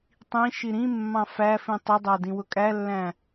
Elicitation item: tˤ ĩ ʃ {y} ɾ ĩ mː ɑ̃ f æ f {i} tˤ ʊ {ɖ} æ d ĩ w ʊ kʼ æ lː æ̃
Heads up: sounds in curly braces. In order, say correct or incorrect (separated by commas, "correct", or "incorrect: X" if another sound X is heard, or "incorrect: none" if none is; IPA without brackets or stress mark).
incorrect: i, incorrect: ĩ, incorrect: dˤ